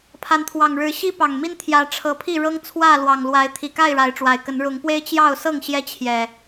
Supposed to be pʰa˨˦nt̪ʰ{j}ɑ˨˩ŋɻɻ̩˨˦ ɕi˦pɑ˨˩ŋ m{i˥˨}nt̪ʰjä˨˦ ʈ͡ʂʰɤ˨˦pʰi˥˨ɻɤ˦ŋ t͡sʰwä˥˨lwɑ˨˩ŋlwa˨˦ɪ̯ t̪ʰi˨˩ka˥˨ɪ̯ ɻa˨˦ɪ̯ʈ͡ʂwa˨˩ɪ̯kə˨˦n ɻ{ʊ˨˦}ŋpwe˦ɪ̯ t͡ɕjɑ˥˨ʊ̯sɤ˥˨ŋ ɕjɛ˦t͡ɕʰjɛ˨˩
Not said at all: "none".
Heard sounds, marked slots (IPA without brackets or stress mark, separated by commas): w, i˦, ʊ˨˦